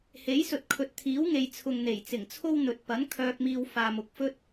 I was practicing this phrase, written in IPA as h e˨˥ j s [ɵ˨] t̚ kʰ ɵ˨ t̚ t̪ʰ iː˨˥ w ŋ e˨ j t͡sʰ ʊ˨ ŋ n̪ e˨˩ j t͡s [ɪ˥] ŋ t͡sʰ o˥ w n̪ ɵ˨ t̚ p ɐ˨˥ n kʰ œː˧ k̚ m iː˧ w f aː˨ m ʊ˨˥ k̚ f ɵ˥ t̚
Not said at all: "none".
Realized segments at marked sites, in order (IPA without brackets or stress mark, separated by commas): ɵ˨, ɪ˨˩